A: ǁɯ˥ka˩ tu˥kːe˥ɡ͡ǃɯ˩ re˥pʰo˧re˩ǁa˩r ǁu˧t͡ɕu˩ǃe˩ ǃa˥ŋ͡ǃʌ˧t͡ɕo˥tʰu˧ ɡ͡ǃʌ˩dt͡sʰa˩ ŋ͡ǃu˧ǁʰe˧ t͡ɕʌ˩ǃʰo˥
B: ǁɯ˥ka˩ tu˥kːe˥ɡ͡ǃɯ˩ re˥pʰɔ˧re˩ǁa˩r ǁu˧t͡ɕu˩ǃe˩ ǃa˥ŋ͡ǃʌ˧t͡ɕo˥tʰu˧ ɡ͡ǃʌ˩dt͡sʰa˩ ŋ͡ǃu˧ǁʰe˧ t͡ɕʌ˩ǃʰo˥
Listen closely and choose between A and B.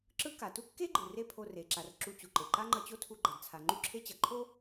A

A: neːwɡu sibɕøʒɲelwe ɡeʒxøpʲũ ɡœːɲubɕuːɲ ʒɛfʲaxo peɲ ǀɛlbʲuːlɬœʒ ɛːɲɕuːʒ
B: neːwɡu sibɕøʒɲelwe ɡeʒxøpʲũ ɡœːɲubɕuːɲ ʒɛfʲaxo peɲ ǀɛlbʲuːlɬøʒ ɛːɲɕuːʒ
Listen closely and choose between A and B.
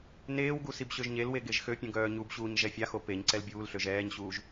B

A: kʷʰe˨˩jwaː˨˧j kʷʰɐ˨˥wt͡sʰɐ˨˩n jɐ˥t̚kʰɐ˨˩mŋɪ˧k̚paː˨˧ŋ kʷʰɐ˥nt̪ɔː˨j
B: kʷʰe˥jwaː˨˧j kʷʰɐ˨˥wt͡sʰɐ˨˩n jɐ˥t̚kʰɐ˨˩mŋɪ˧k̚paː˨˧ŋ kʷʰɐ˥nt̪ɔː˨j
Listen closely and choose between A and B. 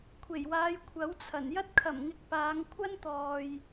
A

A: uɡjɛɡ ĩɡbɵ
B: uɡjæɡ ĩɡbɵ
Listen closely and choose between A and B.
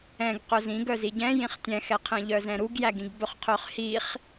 B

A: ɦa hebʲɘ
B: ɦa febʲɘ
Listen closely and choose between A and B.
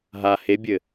A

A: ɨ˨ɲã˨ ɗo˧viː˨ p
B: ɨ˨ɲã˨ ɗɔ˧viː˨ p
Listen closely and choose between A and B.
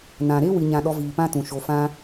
B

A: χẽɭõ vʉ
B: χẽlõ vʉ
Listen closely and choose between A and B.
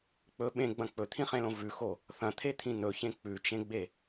B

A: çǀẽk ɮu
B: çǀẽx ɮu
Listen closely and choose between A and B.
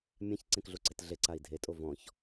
A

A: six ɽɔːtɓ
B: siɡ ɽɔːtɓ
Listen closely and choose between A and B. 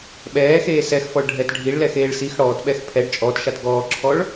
A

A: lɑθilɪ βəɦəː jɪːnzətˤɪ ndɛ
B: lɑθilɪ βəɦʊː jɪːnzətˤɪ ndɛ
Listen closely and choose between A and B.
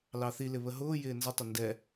B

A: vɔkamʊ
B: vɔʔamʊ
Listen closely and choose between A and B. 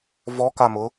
A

